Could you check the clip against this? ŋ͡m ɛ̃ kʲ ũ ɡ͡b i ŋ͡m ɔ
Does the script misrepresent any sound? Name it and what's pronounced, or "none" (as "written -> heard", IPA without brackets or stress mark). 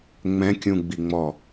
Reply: none